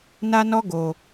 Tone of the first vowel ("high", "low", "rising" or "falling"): high